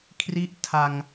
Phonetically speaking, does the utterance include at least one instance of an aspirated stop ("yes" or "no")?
yes